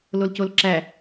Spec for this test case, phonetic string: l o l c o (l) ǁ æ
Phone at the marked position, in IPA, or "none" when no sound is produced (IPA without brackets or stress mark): l